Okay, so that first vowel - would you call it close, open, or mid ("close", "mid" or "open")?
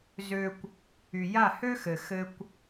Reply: mid